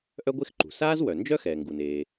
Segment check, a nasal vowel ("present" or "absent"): absent